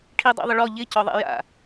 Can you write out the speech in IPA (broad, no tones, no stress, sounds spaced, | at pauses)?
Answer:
ʈʰ i dˤ a̰ ðˤ ɪ ɭ ɔ ʎ ɪ c ɔ ðˤ ɛ̰ j a̰